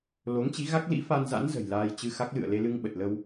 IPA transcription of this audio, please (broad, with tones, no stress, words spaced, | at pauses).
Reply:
lo˨˦ŋt͡ɕi˨˦ ɣa˦˥k̚lḭ˧˥fa˧nza̰˧˥n zə̤˨˩jlaː˧jt͡ɕɨ˧xa˦˥k̚ lɨ̰˧˨ə̯le˧lɨ˧ŋɓə˨˩t̚ lə˧w